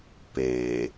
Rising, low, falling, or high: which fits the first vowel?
low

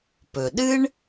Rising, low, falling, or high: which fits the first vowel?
low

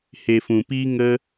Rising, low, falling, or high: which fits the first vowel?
low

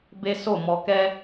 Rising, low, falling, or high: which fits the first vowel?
high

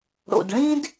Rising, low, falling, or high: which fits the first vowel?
low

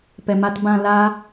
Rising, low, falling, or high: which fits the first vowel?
low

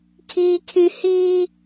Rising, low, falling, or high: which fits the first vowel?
high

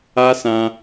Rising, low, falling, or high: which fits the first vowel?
high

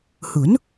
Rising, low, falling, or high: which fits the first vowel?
rising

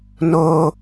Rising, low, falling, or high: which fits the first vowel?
high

